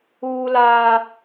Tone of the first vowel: high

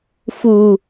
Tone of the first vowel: low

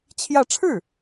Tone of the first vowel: falling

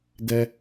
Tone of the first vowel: high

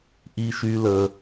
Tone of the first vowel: high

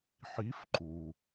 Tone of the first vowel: rising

